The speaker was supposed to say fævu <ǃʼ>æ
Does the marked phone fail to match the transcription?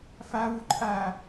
no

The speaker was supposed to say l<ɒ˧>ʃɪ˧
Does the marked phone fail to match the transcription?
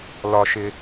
no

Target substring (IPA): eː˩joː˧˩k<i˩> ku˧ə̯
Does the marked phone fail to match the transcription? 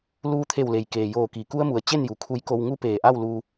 no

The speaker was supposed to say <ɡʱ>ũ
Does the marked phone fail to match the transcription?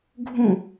no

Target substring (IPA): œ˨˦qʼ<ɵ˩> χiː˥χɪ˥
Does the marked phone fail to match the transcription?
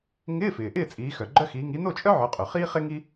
no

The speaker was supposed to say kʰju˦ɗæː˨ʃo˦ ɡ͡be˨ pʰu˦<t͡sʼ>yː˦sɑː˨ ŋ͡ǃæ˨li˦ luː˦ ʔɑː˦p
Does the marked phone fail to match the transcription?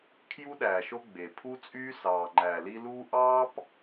no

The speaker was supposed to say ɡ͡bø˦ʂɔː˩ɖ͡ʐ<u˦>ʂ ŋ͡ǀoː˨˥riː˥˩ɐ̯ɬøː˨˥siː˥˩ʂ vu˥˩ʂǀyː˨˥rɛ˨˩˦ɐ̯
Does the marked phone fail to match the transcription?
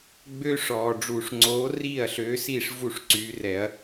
yes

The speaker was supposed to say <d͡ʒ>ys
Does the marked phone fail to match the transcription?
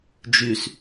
no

